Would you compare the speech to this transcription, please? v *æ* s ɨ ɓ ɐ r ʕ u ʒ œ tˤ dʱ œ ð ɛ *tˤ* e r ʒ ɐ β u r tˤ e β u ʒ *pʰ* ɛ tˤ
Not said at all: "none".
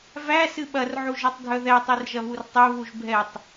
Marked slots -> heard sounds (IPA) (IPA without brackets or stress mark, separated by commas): æ, tˤ, bʱ